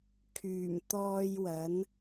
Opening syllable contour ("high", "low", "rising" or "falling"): low